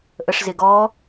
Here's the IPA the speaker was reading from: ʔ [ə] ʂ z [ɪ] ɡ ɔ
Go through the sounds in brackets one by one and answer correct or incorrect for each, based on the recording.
correct, correct

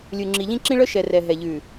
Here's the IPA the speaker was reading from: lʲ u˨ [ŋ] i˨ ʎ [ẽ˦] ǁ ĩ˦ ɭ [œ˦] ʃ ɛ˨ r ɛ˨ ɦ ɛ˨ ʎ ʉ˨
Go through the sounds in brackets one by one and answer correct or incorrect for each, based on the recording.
incorrect, incorrect, correct

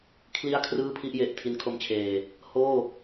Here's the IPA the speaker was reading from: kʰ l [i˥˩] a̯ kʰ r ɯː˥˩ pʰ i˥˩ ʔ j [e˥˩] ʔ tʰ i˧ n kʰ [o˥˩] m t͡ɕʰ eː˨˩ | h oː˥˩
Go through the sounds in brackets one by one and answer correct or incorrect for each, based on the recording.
correct, incorrect, incorrect

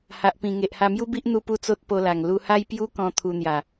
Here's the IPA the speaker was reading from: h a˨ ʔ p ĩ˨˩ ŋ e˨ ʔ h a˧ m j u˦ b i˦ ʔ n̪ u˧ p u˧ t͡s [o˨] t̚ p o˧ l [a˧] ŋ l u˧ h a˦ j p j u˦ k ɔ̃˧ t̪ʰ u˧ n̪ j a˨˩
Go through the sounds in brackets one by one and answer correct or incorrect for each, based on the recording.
incorrect, incorrect

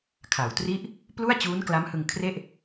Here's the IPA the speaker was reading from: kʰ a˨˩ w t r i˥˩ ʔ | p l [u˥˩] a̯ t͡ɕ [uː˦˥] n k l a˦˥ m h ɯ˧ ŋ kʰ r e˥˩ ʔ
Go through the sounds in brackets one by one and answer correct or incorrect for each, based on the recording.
correct, correct

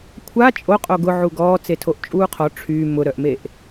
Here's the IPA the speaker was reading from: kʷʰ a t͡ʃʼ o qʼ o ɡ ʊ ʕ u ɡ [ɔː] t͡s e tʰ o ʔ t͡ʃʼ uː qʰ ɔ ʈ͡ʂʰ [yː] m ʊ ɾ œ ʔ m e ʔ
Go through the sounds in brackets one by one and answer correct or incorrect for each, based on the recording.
correct, correct

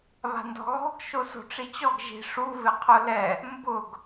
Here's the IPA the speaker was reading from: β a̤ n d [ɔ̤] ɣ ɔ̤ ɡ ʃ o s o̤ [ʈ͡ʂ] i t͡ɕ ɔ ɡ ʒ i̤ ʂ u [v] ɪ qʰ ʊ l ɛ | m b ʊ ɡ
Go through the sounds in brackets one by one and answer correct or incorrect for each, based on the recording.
correct, correct, correct

